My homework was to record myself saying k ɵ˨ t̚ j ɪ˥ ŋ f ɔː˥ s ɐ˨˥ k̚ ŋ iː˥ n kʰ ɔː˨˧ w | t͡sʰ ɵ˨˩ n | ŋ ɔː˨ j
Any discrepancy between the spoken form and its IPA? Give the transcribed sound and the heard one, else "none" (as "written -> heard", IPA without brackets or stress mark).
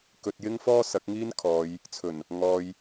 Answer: w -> j